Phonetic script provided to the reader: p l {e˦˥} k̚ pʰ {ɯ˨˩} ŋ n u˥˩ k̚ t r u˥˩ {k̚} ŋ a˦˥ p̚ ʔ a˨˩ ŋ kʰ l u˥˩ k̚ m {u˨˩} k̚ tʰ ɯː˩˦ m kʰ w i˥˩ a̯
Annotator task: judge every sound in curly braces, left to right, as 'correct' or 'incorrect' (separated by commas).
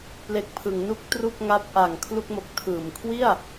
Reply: incorrect, incorrect, correct, incorrect